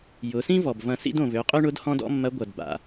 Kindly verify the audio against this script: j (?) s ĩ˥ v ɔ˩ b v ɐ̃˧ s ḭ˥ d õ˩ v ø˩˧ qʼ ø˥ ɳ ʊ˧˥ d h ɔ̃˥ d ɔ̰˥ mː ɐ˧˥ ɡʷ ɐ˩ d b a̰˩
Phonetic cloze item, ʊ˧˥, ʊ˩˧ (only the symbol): ʊ˩˧